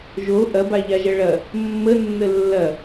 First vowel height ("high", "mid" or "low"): mid